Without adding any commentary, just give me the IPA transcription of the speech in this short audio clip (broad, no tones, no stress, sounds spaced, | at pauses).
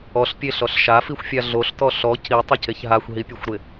ɔ ɬ pʲ e ɬ ɔ ɬ ʃ a f i xʷ fʲ a ɮ o ɬ t ɔ ɬ ɔ c i tˤ ɪ c e ç ɦ a xʷ ɦ i pʲ e xʷ ɾ ɪ